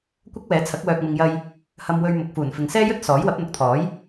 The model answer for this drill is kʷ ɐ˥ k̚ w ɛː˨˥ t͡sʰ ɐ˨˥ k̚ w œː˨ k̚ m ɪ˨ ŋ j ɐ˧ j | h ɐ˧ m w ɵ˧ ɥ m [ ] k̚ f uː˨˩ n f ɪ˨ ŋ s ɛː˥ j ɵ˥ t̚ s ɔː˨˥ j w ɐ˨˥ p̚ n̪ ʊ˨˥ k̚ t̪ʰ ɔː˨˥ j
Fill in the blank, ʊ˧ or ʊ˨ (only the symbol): ʊ˨